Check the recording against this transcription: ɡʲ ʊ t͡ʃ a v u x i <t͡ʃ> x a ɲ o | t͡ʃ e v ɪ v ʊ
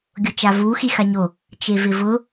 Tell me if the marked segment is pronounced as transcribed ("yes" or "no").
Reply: no